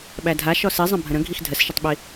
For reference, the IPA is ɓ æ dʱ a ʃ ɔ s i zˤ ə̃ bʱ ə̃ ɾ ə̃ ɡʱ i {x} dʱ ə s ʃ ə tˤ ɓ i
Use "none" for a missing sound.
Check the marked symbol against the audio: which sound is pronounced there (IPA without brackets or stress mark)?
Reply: x